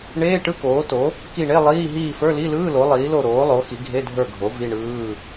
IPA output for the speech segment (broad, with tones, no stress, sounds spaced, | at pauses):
ɳ eː˧˥˧ ʈ ɯ˧˥˧ k oː˩˥ t o˩˥ | k i˦˨ ɳ e˧˥˧ lˠ iː˧˥˧ ɦ iː˦˨ f ə˞˧˥˧ l i˧˥˧ l ɯː˧˥˧ l o˩˥ lˠ iː˩˥ l o˦˨ ɾ oː˩˥ lˠ o˩˥ x i˩˥ ɡʱ e˧˥˧ dʱ ə˞˦˨ ɡʱ o˩˥ v i˧˥˧ ɳ ɯː˧˥˧